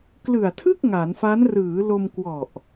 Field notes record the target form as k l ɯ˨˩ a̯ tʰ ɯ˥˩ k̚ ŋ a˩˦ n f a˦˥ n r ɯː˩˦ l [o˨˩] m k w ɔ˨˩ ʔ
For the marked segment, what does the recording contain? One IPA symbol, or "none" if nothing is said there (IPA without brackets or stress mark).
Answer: o˧